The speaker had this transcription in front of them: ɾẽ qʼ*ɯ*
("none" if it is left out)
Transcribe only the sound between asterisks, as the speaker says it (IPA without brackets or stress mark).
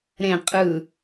ɯ